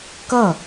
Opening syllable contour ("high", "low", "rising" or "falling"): falling